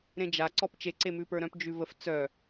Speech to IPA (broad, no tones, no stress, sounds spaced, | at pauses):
ɾ ẽ d͡ʒ a ǀ ɔ p t͡ʃ e ǀ e m ʉ p ə˞ ɾ œ̃ p d͡ʒ ʉ v ə f t͡s œ